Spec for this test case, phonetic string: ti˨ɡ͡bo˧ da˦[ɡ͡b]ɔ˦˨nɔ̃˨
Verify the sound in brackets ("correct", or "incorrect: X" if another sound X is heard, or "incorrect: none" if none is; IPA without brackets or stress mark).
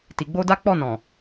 incorrect: k͡p